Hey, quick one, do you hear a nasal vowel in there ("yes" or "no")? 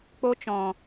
yes